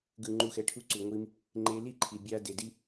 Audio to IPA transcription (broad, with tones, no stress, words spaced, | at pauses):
ɡɯ˨ŋ͡ǃu˨xɛ˨ ʈʰu˧ǀu˨ŋʷi˧m | ŋ͡ǃe˧li˦ǃʰi˨ bʲa˧ de˨di˦